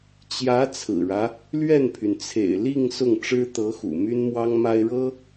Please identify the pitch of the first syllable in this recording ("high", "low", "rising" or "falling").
rising